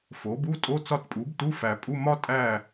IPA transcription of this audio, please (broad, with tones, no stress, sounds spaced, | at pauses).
f o˩˥ b u˧˥˧ tʼ o˧˥˧ t͡s ɒ˥˧ t pʼ u˩˥ b t u˧˥˧ f æ˨ pʼ u˧˥˧ m ɒ˥ tʼ æ˥˧